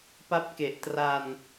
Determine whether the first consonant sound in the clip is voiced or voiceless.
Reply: voiceless